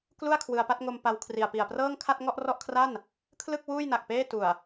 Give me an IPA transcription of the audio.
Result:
k l u˥˩ a̯ kʰ w ɯ˧ a̯ p a˥˩ t̚ ŋ o˧ m p a˧ w kʰ r i˨˩ a̯ p i˨˩ a̯ p r ɤː˥˩ ŋ kʰ a˥˩ t̚ ŋ ɔ˥˩ ʔ r ɔ˥˩ ʔ kʰ r a˥˩ n | kʰ l ɯ˥˩ k̚ w uː˥˩ j n a˨˩ k̚ p eː˥˩ t u˨˩ a̯

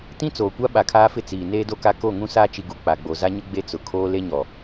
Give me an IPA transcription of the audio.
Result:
t ĩ˦ t͡s oː˨ kʷ a˦ ɓ a˨ kʰ aː˦ f ɪ˦ t͡s iː˨ n eː˦ d o˦ k a˦ k o˦˨ ŋ ũ˦ s aː˦ t͡ʃ i˨ ɡ u˨ k͡p a˨ ɡ͡b o˨ z a˦ ɲ ʊ˦ ɡ͡b e˦ t͡s ʊ˨ kʰ oː˦ l e˦ ɲ ɔ˨

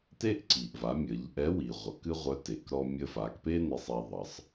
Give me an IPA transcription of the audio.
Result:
t e˥ ʔ ǀ i˩ ʔ v a˩˧ mʲ ə˩˧ ʎ ʔ ɛ˧˥ w i˩ ʁʷ ʌ˩˧ k ɨ˥ ʁʷ œ˧˥ t e˩˧ k ɾ ɔ˧ mʲ ə˧ f a˩˧ k p e˥ n e˧ sˤ ɛ˧ ðˤ ʌ˩˧ sˤ

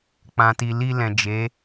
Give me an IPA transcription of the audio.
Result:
k͡p ã˨ t i˨ l i˧ l ɛ̃˨ d͡ʒ e˨˦

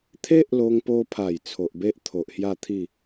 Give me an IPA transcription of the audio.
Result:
t̪ʰ e˦ ʔ l o˧ ŋ p o˧ pʰ a˨˩ j t͡sʰ o˨ ʔ b e˦ ʔ t̪ʰ o˨ ʔ h j a˥˧ t̪ʰ i˥˧

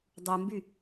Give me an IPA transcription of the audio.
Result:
dˤ u m b y

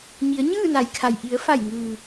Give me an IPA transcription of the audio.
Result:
ɲ i˩˧ ə̯ ɲ ɯː˥˨ n a˩˧ j kʰ a˩ j ʔ i˩˧ ə̯ f a˧˩ j ŋ ɯː˩

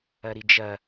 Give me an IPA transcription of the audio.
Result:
ɐ ɾ i d͡ʒ ɐ

